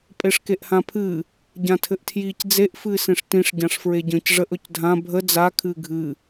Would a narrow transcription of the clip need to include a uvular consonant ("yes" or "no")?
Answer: no